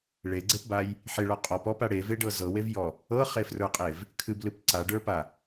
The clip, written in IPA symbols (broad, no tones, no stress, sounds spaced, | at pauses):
ɭ e ɡ͡ǀ e p b a j | ħ e ɭ ɔ qʼ ɔ p ɔ p a ɽ e v e ɖ ɤ z ɤ w e v j ɔ | ɤ χ e f r ə˞ qʼ e v | kʰ ɨ b l ɨ p ǀ a ɖ ə˞ p a